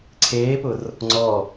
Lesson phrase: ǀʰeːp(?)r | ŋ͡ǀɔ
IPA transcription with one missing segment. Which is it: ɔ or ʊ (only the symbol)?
ʊ